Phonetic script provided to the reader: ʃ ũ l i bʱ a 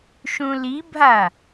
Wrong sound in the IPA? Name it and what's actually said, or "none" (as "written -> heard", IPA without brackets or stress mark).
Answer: none